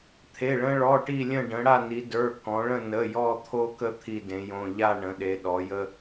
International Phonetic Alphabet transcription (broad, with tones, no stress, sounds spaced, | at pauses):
t̪ʰ e˩˧˩ ɭ ə̃˦ ɭ ɔ˩˧˩ ʈ i˦˨ lʲ ə̃˦˨ ɖ ə̃˩˧ ɽ a˦˨ n i˩˧ d ə˞˩˧˩ k ɔ̃˩˧ ɭ ə̃˦˨ n ə˩˧˩ j ɔ˦˨ t̪ʰ o˦ k ə˦ t̪ʰ i˦˨ d ẽ˩˧ j õ˩˧˩ ʎ a˦˨ ɳ ə̃˩˧ ɗ e˩˧ ɗ ɔ˩˧ j ə˦